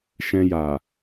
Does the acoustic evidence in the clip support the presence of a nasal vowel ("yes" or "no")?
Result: yes